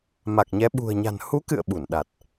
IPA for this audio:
ma˨˩k̚ɲɛ˨˦ ɓṳ˨˩ə̯ɲa̤˨˩n hu˨˦kɨ̰˧˨ə̯ ɓu˧˩nɗa˨˩t̚

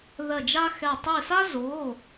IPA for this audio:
ðɜ˧˩d͡ʒa˦xɛ˧˩ tˤi˧˩sa˦zoː˩˧˩

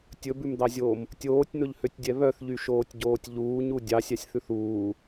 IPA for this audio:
tʲɵbʉmd̪ɑzʲoːm | tʲoːtʲn̪ɵʎhøtʲdʲɛ βœθʎyʃoːtʲɟoːtʲ ʎuːɲu dʲɑsʲɑsʲθʉθ uː

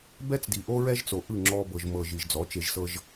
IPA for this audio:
bɛ˦t͡sdi˨ ʔo˦ɹɛ˦ʒt͡so˨ ʔɯ˦˨ŋ͡ǁɔ˧bɤ˨ʒ mɤ˨ ʒi˨ʒd͡zɔ˨˦t͡ʃe˧ʒsɤ˦ʒ

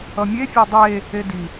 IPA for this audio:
ʌmʲe fʲadˤeː | edi

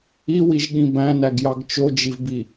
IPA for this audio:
iwiʒ ɠĩbæ̃næɡ jɑɡt͡ʃod͡ʒivbi

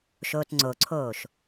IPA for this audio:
ʃoːtŋ͡ǀoǀʰoːʃ

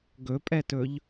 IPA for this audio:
ɡɵpʼɛtɵʎ

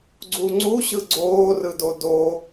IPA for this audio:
ɡ͡ǀuŋ͡ǀuɕɯ ɡ͡ǀoːrɯdo do

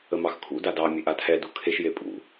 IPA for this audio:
əmɑxkʰṵ dadɑ mʲeʔatʰɛ dukʰeʃ jepʼṵ

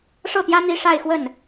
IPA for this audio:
ʂɤ˥˩t̪jä˥ n̪i˥ʂa˥˧ɪ̯xwə˥˩n

